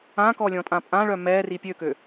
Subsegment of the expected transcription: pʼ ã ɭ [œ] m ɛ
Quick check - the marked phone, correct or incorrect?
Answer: correct